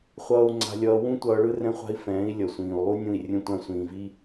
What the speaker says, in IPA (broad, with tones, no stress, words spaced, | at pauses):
χʷʌː˧u̯ ŋ͡ǀa̤˧lʲʌː˧ wũ˦ tʷʌː˧ɭɯ˦rɛ̃˦χʷa̤˦i̯ fɛ̃ː˨˦i̯ lʲʌ˨sʷĩː˨u̯lˠu˦nʲũ˦˨i̯ rʲũ˦tʷã˦sʷĩː˧ vi˦